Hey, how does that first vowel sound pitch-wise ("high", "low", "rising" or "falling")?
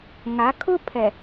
rising